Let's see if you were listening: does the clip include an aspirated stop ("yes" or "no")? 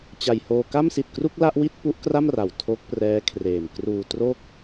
yes